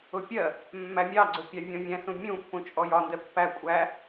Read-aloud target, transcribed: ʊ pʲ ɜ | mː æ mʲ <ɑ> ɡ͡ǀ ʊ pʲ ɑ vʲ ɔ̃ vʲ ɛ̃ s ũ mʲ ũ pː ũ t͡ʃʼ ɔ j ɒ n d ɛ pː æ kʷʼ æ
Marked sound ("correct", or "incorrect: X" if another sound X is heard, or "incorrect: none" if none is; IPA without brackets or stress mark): correct